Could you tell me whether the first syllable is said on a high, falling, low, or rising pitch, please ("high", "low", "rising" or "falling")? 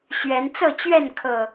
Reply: rising